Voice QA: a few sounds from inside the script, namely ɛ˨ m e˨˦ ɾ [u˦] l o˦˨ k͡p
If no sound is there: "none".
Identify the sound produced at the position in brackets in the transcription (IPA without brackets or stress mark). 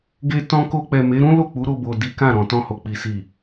ũ˦